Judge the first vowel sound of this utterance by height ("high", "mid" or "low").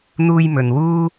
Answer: high